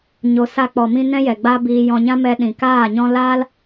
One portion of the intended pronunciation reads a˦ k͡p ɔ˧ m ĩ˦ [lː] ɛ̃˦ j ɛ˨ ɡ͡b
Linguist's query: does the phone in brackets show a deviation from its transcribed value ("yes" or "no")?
yes